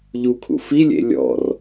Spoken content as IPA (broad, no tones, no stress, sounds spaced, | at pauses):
ʎ u kʰ ṵ f i lʲ ḛ lʲ ɔ̰ r